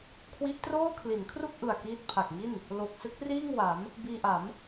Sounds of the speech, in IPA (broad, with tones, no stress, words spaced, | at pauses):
kʰwi˦˥ʔtroː˥˩ kʰli˩˦nkʰru˥˩k̚ʔɯ˨˩a̯ kiː˦˥t̚pʰa˨˩k̚ŋi˥˩n | lo˨˩k̚ sɯ˦˥k̚ riː˥˩ŋwa˩˦m | biː˧ʔa˩˦m